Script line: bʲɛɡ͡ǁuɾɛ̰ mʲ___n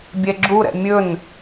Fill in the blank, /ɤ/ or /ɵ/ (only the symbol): ɵ